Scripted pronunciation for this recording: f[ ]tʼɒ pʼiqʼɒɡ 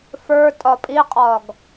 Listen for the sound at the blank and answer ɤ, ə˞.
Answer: ə˞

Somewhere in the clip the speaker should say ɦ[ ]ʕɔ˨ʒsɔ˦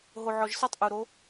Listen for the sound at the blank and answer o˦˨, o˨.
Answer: o˨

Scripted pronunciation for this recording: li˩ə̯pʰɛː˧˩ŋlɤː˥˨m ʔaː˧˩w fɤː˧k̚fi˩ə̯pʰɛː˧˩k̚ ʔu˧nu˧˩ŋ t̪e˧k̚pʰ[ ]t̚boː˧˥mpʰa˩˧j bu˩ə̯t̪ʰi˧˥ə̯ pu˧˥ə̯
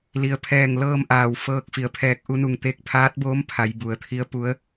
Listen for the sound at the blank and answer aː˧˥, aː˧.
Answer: aː˧˥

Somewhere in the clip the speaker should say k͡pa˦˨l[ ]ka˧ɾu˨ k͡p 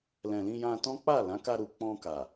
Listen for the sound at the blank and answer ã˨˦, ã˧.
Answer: ã˨˦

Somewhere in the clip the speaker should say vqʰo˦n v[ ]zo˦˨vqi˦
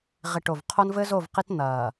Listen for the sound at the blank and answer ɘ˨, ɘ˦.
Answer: ɘ˦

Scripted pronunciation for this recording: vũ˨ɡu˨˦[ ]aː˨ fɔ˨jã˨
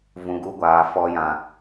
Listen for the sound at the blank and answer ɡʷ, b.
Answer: ɡʷ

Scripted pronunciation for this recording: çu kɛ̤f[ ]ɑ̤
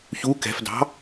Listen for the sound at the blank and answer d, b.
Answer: d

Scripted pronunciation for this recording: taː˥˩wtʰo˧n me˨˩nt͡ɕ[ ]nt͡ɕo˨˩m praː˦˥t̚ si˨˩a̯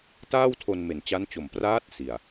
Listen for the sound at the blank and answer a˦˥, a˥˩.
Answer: a˦˥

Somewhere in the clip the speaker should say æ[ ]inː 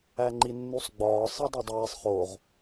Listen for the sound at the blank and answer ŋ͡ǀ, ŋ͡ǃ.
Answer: ŋ͡ǃ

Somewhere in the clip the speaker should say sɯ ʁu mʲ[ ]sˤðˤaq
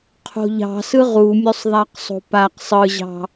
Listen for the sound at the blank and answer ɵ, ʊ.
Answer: ɵ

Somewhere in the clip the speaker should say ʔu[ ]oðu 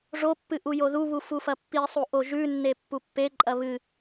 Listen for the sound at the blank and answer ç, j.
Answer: j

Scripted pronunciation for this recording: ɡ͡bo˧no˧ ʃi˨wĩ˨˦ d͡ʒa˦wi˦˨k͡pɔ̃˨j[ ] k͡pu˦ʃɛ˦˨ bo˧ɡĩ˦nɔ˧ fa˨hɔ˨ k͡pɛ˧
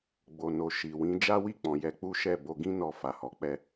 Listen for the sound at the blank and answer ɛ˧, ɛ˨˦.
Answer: ɛ˨˦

